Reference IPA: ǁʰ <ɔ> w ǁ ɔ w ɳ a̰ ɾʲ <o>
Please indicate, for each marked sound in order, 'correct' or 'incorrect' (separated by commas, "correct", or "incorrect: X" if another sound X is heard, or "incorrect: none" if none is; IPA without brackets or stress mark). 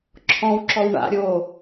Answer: incorrect: ɔ̃, correct